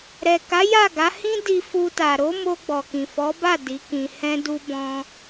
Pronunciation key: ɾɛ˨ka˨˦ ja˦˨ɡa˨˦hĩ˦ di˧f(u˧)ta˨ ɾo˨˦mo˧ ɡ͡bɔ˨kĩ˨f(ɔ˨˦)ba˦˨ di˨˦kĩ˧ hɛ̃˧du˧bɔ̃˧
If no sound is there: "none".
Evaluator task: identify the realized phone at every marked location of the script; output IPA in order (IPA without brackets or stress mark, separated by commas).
u˧, ɔ˨˦